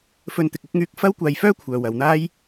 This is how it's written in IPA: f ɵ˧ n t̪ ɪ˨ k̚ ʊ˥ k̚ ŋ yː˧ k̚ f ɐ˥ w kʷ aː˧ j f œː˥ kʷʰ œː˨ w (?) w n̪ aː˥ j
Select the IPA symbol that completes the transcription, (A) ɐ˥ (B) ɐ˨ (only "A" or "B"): B